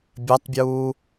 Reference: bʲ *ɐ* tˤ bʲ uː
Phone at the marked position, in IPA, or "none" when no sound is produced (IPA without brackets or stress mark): ɐ